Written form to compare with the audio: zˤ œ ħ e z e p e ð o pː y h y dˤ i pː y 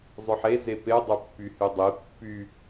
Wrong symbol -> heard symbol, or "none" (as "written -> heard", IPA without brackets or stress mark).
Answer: ð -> dˤ